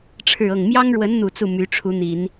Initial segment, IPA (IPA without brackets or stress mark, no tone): ʈ͡ʂʰ